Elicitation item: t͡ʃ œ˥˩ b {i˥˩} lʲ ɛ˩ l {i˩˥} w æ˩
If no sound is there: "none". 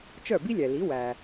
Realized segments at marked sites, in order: i˥, i˩˥

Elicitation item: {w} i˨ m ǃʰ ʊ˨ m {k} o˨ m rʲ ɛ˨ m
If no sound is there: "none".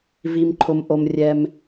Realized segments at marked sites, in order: v, ʔ

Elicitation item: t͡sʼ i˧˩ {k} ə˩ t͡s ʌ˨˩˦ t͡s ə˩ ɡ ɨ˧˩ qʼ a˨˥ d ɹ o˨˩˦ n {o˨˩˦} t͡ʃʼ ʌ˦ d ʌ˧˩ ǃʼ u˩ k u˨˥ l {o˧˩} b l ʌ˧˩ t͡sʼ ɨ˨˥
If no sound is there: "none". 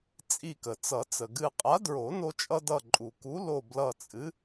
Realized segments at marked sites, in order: k, o˦, o˧˩

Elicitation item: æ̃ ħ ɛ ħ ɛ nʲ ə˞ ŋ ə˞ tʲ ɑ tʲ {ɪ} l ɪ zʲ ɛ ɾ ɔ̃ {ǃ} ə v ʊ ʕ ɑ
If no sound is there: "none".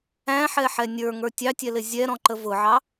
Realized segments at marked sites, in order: ɛ, ǃ

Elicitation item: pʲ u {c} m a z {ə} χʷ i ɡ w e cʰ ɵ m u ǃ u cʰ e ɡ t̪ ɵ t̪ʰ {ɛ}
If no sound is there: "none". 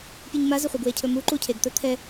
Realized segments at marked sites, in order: ɲ, ə, ɛ

